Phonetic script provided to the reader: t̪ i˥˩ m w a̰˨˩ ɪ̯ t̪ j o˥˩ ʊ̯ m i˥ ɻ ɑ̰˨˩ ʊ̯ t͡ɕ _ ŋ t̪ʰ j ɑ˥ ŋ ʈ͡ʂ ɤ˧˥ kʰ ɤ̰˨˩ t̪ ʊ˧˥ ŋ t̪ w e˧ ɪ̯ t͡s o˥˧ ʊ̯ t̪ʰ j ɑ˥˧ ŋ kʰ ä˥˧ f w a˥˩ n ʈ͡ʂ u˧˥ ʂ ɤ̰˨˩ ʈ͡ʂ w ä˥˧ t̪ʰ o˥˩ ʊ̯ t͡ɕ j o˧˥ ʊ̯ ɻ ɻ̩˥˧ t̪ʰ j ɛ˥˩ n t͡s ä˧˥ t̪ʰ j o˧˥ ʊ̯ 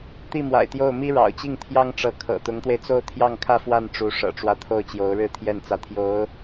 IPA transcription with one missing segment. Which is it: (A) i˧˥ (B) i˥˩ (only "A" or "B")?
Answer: B